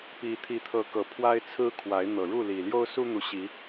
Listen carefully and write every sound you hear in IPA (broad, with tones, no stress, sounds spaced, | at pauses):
p i˨˦ t̪ʰ i˨˦ t̪ʰ ɤ˨˦ k ɤ˨˩ pʰ w a˦ ɪ̯ t͡sʰ ɹ̩˦ kʰ w a˨˦ ɪ̯ n̪ ɤ˨˩ ɻ u˥˨ l i˨˩ l j o˦ ʊ̯ s u˦ n̪ u˨˦ ɕ i˨˦